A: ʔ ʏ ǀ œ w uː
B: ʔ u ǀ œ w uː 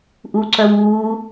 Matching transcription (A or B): B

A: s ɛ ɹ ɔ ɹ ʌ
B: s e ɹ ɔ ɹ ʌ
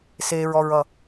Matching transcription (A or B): B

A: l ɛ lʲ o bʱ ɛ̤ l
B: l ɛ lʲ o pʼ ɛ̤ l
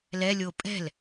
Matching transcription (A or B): B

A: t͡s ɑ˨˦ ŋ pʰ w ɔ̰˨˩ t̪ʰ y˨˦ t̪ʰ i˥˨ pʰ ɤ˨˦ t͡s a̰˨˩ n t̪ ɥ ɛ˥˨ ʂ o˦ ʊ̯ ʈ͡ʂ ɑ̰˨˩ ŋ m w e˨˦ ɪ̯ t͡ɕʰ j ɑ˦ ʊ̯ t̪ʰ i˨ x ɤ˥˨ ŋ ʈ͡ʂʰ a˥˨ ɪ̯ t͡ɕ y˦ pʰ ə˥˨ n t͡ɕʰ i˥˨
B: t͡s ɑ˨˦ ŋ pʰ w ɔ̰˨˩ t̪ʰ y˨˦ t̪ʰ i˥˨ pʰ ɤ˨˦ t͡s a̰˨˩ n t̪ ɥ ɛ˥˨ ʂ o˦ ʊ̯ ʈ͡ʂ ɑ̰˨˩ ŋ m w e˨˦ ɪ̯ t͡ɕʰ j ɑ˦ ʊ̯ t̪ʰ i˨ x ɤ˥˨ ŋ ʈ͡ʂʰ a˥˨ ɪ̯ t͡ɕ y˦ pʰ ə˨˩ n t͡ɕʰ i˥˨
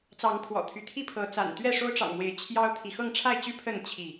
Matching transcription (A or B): A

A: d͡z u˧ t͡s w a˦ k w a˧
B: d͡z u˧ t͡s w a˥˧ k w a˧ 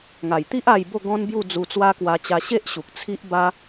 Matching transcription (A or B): A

